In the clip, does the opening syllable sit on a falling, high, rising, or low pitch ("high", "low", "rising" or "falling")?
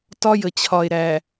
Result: high